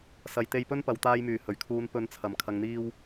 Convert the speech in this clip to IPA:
s ɐ˨ j t̪ e˧ j p ɵ˥ n p ɐ˨ w t̪ aː˧ j m yː˨˩ h ɵ˨˩ ɥ kʰ uː˨˧ n p ɵ˨˧ n t͡sʰ ɐ˨˩ m kʰ ɐ˨ ŋ n̪ iː˧ w

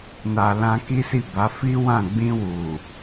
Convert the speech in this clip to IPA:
n a˨ l ã˧ k i˦ s i˦˨ b a˨˦ f i˦ w ã˦˨ ɡ͡b ĩ˧ w u˨

